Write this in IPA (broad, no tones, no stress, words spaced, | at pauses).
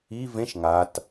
i vẽʃ ŋat